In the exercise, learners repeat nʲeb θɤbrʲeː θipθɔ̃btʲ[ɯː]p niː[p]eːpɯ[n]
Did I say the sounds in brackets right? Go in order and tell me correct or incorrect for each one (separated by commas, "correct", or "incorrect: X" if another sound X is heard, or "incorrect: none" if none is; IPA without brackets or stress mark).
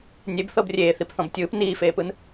correct, incorrect: f, correct